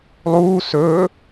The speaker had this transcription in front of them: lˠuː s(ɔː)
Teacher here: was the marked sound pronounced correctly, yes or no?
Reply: no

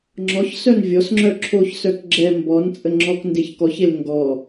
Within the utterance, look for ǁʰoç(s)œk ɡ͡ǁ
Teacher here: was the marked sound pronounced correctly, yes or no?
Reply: yes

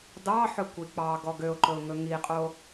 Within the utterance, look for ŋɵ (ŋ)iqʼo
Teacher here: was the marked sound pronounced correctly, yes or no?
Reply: yes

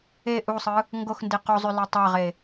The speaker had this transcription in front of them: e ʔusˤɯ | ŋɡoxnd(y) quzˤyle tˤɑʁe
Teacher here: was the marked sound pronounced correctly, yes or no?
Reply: no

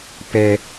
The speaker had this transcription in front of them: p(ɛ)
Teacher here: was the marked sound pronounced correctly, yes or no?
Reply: yes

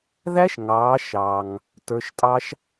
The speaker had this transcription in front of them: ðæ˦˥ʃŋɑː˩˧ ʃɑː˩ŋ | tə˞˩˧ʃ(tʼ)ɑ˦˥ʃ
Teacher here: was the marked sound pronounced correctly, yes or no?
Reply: yes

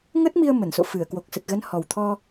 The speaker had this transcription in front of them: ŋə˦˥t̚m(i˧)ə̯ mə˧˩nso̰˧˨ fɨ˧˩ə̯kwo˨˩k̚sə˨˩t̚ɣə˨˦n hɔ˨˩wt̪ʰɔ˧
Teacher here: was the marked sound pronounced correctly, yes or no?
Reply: yes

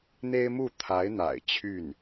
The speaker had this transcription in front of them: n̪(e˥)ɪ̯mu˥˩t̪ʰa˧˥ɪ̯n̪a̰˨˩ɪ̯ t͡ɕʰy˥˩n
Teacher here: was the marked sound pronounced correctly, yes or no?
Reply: yes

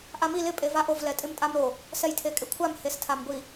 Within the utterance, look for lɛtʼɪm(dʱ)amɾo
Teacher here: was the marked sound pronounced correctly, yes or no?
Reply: no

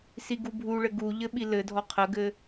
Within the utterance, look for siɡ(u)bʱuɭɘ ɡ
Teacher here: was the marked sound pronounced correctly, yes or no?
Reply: yes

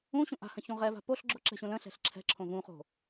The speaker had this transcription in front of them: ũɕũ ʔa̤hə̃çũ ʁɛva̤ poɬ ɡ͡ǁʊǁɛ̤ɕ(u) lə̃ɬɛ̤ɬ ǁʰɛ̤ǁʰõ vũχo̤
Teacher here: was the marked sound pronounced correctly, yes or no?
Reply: no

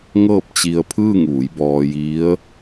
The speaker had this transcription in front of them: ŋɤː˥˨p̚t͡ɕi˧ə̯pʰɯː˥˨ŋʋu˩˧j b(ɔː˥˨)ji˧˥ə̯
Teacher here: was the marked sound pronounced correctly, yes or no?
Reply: no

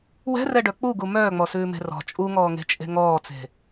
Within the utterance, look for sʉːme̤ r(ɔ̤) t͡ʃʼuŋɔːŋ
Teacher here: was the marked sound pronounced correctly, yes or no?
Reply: yes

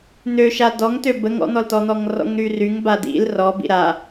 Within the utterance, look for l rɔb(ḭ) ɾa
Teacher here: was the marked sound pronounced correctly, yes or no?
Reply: yes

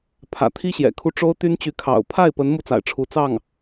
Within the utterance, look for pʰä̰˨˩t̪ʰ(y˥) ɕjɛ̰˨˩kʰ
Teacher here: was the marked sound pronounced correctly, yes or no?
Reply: no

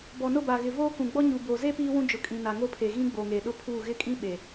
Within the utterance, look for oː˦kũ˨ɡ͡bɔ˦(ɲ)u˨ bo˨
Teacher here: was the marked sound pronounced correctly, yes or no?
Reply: yes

